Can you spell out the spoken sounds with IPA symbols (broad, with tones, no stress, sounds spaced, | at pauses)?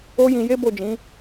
o˦ j ĩ˧ j e˦ b o˦˨ d͡ʒ ĩ˨˦